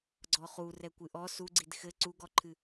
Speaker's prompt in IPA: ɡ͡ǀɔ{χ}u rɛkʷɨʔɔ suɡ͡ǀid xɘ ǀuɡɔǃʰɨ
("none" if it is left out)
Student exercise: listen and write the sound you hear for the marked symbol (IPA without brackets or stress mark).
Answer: χ